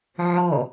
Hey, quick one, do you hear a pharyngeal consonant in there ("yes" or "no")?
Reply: yes